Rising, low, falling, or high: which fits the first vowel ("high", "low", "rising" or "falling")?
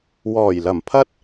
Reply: low